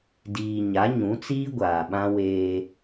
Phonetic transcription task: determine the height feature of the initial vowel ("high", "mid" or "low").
high